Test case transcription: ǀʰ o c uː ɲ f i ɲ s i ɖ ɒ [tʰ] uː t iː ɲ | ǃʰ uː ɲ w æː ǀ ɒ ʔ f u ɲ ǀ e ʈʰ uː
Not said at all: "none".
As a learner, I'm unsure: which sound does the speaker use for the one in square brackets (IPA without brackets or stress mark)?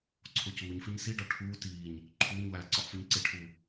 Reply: ʈʰ